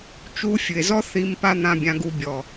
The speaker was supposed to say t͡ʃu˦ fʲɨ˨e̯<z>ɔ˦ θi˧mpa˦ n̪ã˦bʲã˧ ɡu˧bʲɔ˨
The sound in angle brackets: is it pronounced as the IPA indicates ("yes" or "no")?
yes